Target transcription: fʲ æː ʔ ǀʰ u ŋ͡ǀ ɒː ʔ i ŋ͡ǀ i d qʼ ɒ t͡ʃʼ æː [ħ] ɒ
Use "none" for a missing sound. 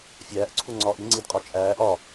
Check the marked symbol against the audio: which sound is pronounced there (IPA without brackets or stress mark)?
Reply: ʔ